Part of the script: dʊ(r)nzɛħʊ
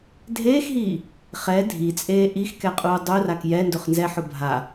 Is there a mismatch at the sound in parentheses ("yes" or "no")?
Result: yes